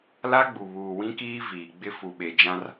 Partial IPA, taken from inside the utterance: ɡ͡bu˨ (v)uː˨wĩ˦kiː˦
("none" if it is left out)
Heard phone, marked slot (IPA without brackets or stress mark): β